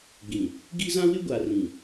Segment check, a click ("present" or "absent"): absent